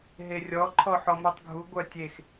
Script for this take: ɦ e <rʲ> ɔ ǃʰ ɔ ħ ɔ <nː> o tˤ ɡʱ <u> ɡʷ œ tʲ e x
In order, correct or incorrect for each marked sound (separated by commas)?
correct, incorrect, correct